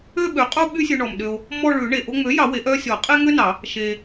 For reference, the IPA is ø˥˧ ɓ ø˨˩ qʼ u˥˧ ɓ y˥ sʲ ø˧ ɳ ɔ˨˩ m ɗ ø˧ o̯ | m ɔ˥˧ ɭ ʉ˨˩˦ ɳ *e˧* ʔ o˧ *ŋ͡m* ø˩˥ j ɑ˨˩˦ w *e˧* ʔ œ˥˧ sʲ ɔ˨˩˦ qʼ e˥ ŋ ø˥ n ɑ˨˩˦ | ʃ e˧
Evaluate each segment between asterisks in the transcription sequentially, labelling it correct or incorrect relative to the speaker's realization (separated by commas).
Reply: incorrect, correct, incorrect